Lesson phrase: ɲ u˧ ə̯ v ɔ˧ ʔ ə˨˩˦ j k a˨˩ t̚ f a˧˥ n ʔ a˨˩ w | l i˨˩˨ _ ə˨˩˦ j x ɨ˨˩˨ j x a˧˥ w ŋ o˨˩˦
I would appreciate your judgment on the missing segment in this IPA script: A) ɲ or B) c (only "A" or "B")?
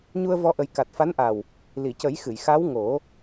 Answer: B